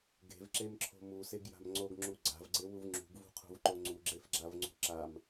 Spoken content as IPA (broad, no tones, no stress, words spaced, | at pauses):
ɡe̤vǁemǁʰo̤ museɡja̤m ŋ͡ǀoɡŋ͡ǁu ɡ͡ǀa̤vɡ͡ǀewuv ŋ͡ǁṳɡvṳqʰṳvǃo ŋ͡ǀuɡ͡ǁefɡ͡ǁavŋ͡ǀṳ ǁam